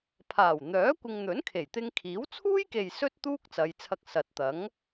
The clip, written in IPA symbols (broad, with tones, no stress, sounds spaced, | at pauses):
pʰ aː˨˩ w n̪ œː˨˥ kʷ ɪ˧ ŋ n̪ ɵ˨˥ n kʰ e˨˩ j t̪ ɪ˧ ŋ kʰ iː˨˥ w t͡sʰ uː˥ j k e˨ j s ɵ˥ t̚ t̪ uː˥ k̚ t͡s ɐ˨˧ j t͡sʰ ɐ˧ k̚ s ɐ˨ t̚ t̪ ɐ˨˥ ŋ